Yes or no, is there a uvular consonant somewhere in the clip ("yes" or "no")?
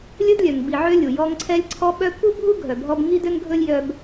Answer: no